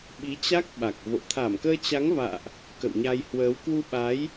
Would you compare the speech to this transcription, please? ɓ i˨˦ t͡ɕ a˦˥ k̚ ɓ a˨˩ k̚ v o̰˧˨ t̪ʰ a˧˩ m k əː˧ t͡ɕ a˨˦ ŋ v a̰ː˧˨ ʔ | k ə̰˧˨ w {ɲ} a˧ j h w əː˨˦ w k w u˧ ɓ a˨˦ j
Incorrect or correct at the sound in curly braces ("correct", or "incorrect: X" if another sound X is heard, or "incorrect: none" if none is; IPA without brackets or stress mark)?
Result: correct